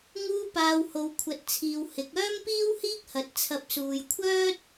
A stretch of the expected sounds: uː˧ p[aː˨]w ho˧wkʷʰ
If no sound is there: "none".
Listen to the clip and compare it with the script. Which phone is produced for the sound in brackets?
aː˨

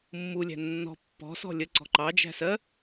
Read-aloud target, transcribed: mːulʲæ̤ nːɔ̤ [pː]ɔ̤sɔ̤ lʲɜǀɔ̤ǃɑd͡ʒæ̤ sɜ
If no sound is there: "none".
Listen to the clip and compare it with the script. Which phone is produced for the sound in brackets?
pː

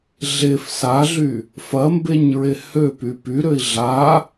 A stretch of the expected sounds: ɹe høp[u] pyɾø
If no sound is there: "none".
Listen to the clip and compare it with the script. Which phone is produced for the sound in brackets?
y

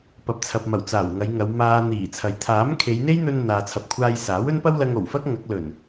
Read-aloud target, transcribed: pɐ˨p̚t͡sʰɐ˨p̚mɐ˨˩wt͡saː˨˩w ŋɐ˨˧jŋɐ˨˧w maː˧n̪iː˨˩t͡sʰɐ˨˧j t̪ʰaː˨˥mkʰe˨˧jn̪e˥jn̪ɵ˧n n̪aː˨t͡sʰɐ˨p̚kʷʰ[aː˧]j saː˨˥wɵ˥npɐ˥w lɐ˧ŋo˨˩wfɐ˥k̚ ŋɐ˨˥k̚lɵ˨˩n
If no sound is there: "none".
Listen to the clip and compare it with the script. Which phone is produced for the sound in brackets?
aː˧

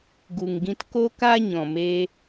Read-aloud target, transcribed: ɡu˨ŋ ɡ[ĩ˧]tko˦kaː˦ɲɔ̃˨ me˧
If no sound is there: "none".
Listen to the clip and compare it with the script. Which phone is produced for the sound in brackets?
ĩ˧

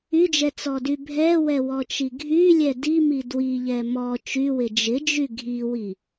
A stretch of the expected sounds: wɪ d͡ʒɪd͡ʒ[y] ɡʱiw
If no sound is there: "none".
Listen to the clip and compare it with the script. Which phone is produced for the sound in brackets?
y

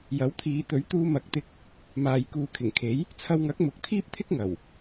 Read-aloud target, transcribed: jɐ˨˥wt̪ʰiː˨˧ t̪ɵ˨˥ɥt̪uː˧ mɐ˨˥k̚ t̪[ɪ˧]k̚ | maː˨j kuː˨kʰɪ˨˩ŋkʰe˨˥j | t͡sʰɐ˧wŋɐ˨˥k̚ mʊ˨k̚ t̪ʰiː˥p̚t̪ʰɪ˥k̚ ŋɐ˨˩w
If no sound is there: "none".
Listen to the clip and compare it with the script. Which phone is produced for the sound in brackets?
ɪ˧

